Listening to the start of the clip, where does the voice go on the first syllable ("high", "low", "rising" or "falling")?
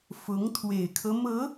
rising